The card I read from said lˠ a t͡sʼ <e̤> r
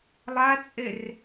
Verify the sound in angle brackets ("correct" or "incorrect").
incorrect